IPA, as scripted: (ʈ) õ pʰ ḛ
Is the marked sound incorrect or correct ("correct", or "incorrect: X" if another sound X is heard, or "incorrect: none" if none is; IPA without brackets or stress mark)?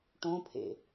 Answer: correct